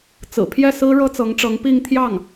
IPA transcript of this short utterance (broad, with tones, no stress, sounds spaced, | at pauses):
t͡s ɹ̩˨˩ pʰ j ɛ˥˩ s ɹ̩˥ ɻ ɤ˥ t͡s ɤ˧˥ ŋ ʈ͡ʂ ɤ˧˥ ŋ p i˥˧ ŋ t̪ʰ j ɑ˥˩ ŋ